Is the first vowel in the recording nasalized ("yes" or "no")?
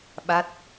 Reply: no